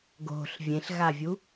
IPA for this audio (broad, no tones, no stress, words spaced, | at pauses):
ɡo̤ɬ vʲẽɬɣavʲu